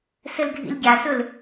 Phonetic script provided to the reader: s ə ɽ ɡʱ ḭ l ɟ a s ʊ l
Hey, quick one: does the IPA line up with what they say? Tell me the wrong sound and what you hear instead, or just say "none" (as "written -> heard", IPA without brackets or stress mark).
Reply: ɽ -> l